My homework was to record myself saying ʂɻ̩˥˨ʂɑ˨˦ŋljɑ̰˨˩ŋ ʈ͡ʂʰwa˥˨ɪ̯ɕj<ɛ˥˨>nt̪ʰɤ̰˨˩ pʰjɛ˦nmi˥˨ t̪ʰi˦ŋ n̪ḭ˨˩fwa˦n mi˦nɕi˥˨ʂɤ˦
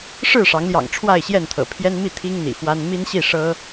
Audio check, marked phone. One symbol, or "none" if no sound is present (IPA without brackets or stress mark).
ɛ˥˨